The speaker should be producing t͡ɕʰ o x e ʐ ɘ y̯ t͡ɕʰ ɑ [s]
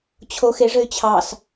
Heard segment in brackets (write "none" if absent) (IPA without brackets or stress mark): s